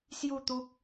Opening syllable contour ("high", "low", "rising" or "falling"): falling